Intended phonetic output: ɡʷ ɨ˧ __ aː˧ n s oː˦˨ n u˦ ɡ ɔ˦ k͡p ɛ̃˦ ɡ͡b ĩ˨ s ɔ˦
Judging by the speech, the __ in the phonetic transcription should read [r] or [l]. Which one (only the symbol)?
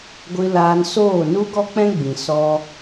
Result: l